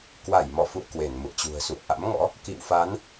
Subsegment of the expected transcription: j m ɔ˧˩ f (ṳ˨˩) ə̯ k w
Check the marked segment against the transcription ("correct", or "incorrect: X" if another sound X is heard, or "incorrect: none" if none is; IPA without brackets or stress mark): incorrect: ṵ˧˨